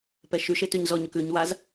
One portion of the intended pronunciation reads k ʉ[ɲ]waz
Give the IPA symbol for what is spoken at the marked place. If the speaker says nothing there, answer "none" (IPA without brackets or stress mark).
ɲ